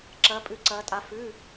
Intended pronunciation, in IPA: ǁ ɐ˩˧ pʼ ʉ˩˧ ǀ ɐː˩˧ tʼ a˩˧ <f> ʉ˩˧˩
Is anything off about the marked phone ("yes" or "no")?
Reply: no